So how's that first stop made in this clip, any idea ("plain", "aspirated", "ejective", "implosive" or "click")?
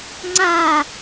click